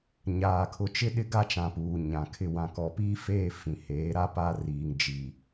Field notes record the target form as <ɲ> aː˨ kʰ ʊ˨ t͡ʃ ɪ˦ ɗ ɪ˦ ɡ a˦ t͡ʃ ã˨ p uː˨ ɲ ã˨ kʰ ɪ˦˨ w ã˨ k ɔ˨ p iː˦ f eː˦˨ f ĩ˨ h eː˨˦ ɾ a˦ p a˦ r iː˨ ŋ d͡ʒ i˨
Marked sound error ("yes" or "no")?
no